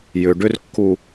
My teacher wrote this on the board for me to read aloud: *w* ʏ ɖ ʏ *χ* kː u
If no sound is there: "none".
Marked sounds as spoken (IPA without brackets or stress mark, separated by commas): j, r